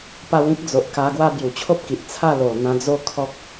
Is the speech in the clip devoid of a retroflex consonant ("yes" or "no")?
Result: yes